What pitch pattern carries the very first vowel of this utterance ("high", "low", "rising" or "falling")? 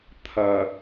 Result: low